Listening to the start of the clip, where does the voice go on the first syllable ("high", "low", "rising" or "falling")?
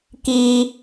high